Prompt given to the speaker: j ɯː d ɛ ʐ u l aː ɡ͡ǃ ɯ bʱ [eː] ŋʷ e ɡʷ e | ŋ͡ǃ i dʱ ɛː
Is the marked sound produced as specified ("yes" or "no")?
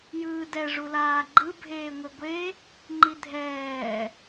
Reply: yes